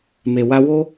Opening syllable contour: low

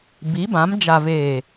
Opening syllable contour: rising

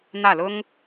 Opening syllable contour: falling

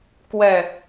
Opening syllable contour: low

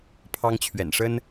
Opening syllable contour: high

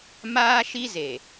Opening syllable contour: high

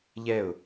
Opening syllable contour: falling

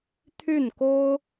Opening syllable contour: falling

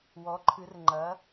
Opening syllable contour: rising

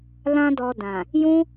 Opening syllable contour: high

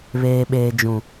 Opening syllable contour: low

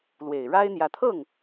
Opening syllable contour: low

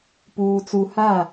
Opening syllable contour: low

